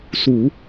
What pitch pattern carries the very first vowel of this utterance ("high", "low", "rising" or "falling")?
low